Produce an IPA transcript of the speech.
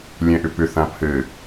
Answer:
lʲ ɛ̃ ʔ ʏ p ʏ θ ã pʰ ɘ

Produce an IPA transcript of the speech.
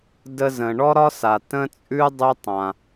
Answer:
d ə˧ z ə̃˩ ɳ ɔ˧ ɾ ɒ˧ s a˩ t ə̃˧ t͡sʼ ʉ˧ dˤ ʉ˧ tˤ ã˩

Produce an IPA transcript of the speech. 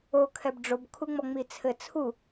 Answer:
o kʰ ɛ b ɖ͡ʐ o b kʰ u ŋ͡m ɔ ŋ͡m i t͡sʰ ɘ t͡sʰ u

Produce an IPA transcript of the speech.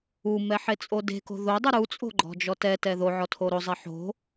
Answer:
u m ɛ ħ e t͡sʼ o d e̤ k o̤ ð o dˤ u ɾ u t͡sʼ o̤ ɡ͡ǃ ɔ̤ d͡ʒ ɔ t ɛ t ɛ ð o ʕ ɔ tʰ o ɾ o zˤ e ħ o̤

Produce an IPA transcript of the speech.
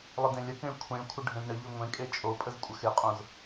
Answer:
lˠ ə d ẽ lʲ ə k ẽ ɭ kʷʰ ẽ ɭ kʷʰ ə ɖʱ ẽ z ɳ ə ʎ ø ŋʷ ẽ kʼ e t͡ʃʼ o pʼ ə z kʷʼ ə x e qʼ õ z

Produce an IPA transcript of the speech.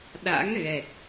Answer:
ɗ a̰˧˥ ŋ ɣ ɛ˨˩ t̚

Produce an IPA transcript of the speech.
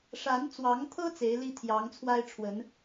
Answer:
ʂ a˨˦ n t͡s w ɑ˨˦ ŋ t̪ʰ ɤ˦ t͡s e˨˦ ɪ̯ l i˦ t̪ʰ j ɑ˨˦ ŋ t͡sʰ w a˦ ɪ̯ ʈ͡ʂʰ w ə˨˦ n

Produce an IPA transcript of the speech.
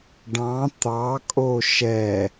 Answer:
ɖ ɑ̃ t̪ ɑ kʼ o ʃ ɛ

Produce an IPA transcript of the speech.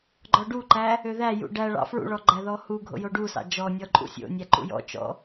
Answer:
ɡ͡ǃ ɔ ɖ u ǃ æ | ø ð æ j ṵ ɖ æ ɭ ɑ̰ f ɹ ṵ ɭ ɔ ɡ͡ǃ æ ð ɔ h u ɡʱ o̰ j o ɖ u s ɑ̰ d͡ʒ ɔ nʲ ɔ ǃʼ ṵ sʲ o̰ nʲ æ ǃ ṵ j ɔ̰ t͡ʃ ɔ̰

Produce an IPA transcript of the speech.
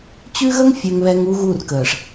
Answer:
t͡ɕ ʉ˦ ɣ ə˦ ŋ fʲ ø˨ ŋ β ɛ˨ ŋ u˦ ɣ u˦˨ r k əː˨ ʂ

